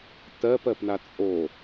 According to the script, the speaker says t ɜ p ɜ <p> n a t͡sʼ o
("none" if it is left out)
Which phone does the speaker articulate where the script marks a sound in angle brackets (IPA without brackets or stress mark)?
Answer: p